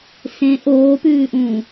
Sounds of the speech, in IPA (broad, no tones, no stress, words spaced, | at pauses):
sẽ ʔoːpʉːʔũː